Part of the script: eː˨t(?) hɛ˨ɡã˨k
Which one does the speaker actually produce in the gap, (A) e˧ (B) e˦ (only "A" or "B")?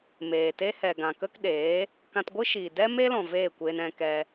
B